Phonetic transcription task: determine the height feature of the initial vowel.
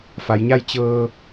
low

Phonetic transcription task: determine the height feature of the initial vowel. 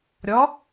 low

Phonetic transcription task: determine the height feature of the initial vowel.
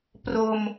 mid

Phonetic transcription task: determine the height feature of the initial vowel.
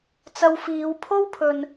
low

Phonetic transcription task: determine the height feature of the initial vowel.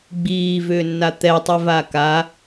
high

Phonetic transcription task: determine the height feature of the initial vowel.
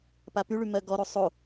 low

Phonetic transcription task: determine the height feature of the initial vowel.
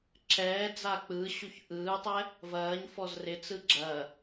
mid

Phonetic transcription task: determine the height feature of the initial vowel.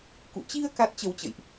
high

